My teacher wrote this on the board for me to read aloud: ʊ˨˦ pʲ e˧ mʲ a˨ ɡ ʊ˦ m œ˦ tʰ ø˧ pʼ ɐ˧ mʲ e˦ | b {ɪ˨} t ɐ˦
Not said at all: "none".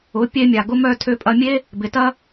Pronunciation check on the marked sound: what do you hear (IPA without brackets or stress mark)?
ɪ˨